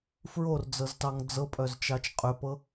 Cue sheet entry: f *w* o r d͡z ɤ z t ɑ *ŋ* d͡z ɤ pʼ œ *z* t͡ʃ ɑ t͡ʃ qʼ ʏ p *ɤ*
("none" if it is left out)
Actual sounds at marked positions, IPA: ɹ, ŋ, z, ɤ

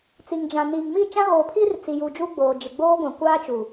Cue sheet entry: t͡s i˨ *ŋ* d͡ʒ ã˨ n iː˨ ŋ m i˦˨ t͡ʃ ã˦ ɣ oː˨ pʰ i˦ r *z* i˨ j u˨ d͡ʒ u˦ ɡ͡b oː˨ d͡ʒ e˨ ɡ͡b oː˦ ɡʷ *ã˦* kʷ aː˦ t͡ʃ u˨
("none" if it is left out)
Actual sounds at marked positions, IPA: ŋ, t͡s, ã˨

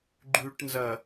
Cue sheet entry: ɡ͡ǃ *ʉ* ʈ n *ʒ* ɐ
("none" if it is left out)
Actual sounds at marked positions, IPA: ʉ, z

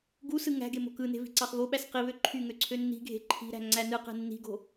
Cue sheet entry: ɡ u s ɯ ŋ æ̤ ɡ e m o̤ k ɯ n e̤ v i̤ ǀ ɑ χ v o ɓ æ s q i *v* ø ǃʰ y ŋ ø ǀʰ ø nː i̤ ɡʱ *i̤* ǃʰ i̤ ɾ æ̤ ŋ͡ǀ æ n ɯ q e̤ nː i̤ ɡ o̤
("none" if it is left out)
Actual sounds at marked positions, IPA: β, e̤

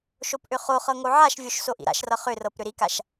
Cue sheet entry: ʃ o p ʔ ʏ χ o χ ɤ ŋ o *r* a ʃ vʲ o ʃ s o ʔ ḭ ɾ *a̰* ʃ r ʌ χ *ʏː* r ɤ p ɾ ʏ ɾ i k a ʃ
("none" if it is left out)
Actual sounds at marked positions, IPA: ʕ, a̰, ʏ

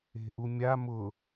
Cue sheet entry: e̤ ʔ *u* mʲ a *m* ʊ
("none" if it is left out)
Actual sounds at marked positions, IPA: u, m

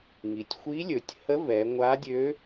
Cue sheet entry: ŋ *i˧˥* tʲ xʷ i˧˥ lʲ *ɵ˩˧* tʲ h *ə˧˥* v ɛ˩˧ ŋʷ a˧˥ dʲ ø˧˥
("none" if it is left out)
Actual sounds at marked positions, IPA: i˩, ɵ˩˧, ə˧˥

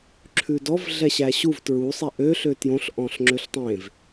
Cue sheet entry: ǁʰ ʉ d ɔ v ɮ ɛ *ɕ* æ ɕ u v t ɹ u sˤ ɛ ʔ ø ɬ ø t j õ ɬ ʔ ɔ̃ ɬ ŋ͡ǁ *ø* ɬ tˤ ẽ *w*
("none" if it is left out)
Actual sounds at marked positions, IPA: ɕ, ø, v

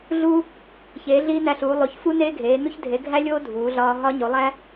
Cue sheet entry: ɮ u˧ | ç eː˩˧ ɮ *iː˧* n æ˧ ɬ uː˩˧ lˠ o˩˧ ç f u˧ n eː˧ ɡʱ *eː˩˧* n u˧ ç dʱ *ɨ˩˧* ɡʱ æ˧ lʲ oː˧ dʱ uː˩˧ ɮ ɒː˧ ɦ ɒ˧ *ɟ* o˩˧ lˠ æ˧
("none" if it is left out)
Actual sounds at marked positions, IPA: iː˧, eː˩˧, e˩˧, ɲ

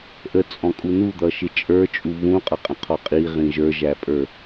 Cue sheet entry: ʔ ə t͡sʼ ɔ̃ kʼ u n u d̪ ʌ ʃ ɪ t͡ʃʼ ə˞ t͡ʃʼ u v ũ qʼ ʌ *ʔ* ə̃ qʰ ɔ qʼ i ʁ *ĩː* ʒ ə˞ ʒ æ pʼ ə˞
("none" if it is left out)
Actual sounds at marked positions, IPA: qʼ, ĩ

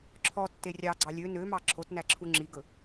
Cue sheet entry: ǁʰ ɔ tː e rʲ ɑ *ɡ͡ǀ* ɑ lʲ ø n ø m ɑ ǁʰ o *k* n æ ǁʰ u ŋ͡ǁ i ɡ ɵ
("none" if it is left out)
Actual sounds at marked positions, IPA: ɡ͡ǀ, t

